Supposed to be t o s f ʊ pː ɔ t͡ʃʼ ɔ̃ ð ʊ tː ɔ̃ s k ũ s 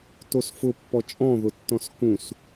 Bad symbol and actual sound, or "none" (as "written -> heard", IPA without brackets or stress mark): none